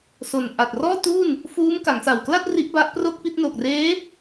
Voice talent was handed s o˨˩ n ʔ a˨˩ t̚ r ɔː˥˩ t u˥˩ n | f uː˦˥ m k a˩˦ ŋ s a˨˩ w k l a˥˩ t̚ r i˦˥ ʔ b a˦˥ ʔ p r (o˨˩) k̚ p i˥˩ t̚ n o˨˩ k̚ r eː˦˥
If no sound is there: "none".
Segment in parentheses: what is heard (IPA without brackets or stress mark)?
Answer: o˥˩